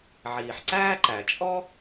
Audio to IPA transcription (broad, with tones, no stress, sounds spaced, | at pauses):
ʕ iː˩ ħ ǀ æː˥ ǃ æ˩ t͡ʃʼ ɔ˥